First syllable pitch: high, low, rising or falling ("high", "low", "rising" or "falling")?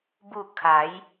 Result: falling